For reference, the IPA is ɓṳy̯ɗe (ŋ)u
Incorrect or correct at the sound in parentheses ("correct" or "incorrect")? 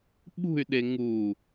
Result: correct